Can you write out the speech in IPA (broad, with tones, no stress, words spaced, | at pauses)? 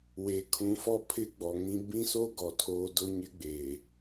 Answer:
we˨kʰũ˨˦fɔ˦pʰɪ˦ ɡ͡bɔ˨ŋĩ˦ bĩ˦so˦ ɡɔ˨tʰoː˦ dʊ˦ɲɪ˦ɡ͡be˨